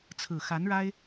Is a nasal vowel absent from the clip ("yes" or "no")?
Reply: yes